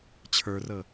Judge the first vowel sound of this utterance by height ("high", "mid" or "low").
mid